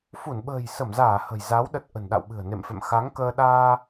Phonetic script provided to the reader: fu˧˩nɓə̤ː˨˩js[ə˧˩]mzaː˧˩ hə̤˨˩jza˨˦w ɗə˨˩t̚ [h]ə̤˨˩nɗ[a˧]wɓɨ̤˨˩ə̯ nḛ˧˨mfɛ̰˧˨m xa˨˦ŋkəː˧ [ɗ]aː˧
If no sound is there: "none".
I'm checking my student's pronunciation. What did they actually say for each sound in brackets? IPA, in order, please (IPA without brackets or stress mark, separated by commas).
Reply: ə˧˩, ʔ, a̰˧˨, ɗ